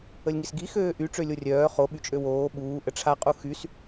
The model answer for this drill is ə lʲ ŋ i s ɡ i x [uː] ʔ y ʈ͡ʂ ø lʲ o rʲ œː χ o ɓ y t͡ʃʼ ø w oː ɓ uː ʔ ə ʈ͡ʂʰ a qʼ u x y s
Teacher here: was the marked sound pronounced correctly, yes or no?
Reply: no